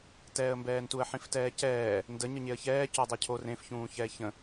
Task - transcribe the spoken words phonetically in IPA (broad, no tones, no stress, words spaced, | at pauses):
tɛːə̯mbɛːntuə̯ ħĩftɛːcɛː | ndə ɲəɲeə̯çɛː coə̯dˤɛcʰo rẽf çũːçɛːçə̃